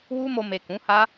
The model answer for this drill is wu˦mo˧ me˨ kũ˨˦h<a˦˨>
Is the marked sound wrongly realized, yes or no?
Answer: yes